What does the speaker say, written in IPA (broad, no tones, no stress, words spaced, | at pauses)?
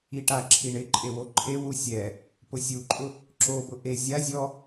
iʈaǁʰi ɳɪ ǃʼewoǃʰewu sʲɛ | pʊsʲuǃʼʊ | ǁobʊ ʔe zʲa zʲɔ